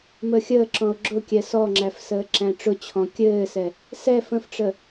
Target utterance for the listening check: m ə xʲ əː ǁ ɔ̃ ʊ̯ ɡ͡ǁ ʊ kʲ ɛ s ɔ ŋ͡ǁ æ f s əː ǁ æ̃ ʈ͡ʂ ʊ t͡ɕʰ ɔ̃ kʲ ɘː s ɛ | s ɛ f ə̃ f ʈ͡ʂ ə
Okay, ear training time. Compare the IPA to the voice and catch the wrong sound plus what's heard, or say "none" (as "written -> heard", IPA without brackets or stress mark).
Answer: none